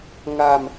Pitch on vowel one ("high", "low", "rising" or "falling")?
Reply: low